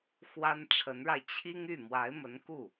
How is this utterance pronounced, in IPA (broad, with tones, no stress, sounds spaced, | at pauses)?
x w a˥ n ʈ͡ʂʰ ə˧˥ n ɻ a˧ ɪ̯ t͡ɕʰ i˥ ŋ y˥˩ m w a˧˥ ɪ̯ m ə˧˥ n k u˥˩